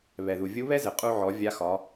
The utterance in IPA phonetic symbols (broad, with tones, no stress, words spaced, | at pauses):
βɛ˩ðu˩vʲu˧˥ βɛ˥zɘ˩qʼu˧ʕɔ˩˧ vʲa˧˥ xɒ˩˧